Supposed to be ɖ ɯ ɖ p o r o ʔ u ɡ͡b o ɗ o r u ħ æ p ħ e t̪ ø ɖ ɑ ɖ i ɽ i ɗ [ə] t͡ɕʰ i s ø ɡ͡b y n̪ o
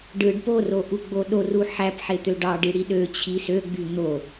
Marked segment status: incorrect: ø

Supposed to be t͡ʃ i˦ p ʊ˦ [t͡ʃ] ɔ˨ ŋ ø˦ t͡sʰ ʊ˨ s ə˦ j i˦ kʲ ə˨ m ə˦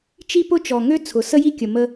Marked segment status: correct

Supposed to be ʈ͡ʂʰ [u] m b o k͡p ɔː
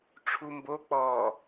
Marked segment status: correct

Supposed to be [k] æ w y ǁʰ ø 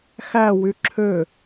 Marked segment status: incorrect: x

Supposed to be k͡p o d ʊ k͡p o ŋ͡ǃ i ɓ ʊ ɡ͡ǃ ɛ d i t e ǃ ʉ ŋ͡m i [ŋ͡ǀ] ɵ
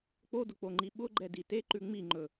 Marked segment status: incorrect: ŋ͡ǃ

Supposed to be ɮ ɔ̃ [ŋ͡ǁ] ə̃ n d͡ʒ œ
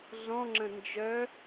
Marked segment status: correct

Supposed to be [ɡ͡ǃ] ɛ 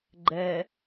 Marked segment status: correct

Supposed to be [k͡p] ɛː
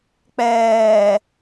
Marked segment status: correct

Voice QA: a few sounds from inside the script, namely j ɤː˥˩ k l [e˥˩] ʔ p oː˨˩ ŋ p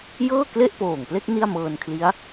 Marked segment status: correct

